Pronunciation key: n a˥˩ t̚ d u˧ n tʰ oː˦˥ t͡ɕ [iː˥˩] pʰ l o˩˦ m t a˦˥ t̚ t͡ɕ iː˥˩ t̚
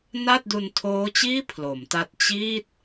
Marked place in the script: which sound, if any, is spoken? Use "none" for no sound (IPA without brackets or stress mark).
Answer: iː˥˩